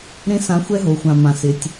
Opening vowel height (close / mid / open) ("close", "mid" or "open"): mid